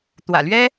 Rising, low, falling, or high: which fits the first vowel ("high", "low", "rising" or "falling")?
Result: low